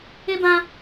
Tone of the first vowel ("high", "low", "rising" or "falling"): high